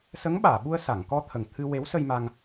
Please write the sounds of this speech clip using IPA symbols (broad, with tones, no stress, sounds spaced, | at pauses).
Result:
s ə˧˥ ŋ ɓ aː˨˩˨ ɓ u˧ ə̯ s a˨˩˨ ŋ k ɔ˧ t̪ʰ ə˨˩ ŋ t̪ʰ ɨ˧ w e˧˥ w s ə˧ j m a˧ ŋ